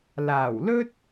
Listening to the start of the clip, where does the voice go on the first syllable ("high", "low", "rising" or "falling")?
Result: low